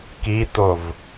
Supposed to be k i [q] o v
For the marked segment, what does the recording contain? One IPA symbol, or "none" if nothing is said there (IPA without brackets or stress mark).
t̪